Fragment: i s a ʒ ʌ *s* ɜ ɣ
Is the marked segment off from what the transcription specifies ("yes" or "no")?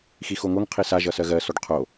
no